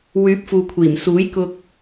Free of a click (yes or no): yes